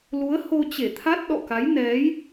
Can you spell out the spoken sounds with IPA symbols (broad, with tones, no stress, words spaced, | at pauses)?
lu˨˦ə̯ ho˧t͡ɕe˧˩t̪ʰa˦˥t̚ ɗɔ̰˧˨ka˨˦jnɛ˨˦j